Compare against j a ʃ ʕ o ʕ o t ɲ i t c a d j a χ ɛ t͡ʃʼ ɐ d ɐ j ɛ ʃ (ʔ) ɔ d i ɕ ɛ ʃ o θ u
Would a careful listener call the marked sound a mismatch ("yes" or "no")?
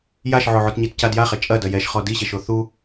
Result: yes